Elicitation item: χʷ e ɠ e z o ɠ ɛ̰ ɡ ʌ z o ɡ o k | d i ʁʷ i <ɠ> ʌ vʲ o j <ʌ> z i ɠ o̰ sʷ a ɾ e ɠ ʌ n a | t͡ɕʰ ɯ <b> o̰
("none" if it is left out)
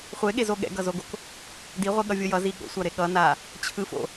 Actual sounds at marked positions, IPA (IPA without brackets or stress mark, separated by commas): ɠ, ʌ, f